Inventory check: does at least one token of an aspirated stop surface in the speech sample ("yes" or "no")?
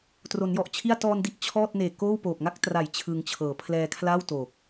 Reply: yes